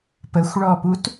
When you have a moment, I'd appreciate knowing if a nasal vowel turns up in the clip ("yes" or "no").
no